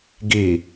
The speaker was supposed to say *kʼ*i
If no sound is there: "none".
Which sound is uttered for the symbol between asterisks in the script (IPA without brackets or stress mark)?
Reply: ɡ